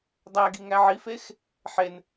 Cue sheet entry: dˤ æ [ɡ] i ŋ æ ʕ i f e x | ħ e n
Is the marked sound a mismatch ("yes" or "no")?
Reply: no